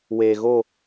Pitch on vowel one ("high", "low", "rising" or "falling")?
low